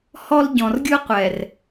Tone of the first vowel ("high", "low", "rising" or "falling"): high